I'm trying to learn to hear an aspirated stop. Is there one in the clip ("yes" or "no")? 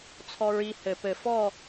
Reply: yes